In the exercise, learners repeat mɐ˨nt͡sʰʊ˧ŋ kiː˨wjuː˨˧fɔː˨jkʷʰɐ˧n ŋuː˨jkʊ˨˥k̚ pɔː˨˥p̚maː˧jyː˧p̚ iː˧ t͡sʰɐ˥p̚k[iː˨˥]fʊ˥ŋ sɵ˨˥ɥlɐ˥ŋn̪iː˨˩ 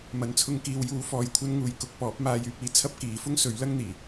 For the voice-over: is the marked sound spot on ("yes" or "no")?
yes